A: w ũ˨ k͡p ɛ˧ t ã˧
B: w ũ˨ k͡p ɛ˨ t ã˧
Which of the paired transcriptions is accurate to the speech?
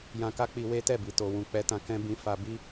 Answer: A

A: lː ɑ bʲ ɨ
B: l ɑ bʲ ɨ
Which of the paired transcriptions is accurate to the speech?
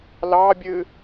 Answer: B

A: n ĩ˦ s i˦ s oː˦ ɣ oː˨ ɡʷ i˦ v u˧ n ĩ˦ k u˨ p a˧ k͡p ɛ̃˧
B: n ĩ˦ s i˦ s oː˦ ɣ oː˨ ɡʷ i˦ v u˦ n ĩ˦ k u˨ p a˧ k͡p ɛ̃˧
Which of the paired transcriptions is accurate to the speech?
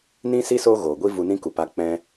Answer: A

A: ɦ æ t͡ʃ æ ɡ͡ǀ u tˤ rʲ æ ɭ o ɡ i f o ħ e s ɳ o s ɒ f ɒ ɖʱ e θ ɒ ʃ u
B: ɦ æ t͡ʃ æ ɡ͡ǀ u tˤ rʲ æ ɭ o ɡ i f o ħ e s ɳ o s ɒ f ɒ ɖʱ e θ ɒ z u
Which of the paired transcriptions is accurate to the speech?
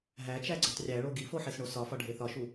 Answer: A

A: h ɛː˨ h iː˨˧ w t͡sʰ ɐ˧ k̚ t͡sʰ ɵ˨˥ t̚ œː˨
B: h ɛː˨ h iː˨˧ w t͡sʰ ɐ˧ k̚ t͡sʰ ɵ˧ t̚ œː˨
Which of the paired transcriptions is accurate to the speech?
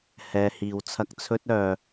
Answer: B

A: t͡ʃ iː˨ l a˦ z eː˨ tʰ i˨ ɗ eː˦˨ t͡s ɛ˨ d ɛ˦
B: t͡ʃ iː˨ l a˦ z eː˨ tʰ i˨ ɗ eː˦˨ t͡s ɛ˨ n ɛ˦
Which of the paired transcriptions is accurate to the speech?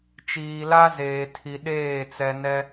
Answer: B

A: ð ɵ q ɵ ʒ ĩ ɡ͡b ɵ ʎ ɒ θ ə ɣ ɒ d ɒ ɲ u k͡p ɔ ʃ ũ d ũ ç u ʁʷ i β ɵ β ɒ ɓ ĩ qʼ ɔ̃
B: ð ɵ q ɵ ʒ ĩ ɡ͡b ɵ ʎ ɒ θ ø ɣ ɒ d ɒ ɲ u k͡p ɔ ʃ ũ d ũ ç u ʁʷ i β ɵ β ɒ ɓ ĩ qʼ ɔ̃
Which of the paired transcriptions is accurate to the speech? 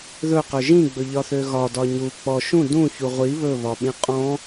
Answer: B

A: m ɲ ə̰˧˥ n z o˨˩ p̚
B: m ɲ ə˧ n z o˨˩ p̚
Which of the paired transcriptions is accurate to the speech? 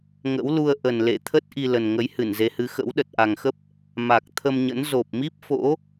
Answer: A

